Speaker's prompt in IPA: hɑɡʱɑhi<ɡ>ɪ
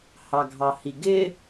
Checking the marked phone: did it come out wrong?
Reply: no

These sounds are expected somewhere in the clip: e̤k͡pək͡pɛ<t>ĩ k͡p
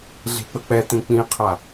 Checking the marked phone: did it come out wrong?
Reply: no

